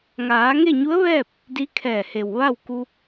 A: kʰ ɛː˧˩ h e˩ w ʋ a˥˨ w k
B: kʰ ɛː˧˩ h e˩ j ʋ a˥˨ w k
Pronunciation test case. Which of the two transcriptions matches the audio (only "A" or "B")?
A